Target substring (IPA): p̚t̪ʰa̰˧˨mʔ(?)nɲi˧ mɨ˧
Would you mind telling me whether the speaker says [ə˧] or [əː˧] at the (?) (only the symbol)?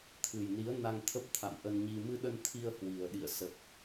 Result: ə˧